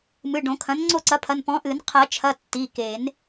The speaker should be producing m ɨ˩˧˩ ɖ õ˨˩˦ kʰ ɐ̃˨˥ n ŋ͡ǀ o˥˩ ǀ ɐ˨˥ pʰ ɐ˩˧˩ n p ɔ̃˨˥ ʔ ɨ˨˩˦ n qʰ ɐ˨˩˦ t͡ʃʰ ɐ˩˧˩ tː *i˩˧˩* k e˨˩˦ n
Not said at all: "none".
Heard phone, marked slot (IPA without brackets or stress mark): i˩˧˩